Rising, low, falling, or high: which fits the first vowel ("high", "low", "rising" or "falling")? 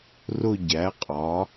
falling